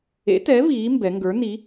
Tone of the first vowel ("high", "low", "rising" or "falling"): rising